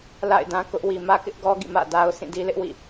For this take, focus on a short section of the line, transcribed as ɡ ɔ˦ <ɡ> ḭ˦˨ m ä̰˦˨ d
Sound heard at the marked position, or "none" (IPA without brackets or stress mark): ɡ